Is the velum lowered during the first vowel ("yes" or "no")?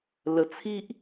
no